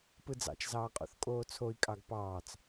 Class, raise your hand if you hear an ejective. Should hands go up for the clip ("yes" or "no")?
yes